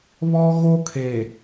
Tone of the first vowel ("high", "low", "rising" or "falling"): high